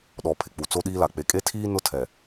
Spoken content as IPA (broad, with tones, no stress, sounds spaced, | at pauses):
ɗ ɔ˨ pʰ ɪ˨ k͡p u˨ t͡s o˦ ɗ iː˦ l a˨ k͡p e˨ kʼ e˦ tʰ iː˦ n ʊ˦ tʰ ɛ˨